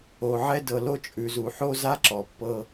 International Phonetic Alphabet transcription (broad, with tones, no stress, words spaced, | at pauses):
o˨ʕɛ˦ dɤ˨lo˦t͡ʃʼʉ˨zu˨ ħo˦za˦ ǁɔ˨pːɤ˦